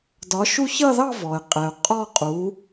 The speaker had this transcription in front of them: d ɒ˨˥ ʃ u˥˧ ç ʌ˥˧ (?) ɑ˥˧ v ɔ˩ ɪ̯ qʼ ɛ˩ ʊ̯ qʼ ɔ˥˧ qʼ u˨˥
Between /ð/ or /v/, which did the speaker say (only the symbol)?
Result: ð